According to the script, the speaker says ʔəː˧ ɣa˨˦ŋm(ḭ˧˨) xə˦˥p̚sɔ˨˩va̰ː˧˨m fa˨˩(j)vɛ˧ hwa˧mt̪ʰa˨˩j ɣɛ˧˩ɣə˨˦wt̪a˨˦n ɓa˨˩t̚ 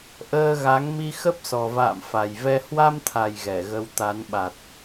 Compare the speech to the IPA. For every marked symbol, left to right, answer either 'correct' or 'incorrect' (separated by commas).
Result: incorrect, correct